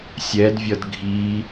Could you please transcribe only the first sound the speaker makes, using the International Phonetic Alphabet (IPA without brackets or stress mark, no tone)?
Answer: sʲ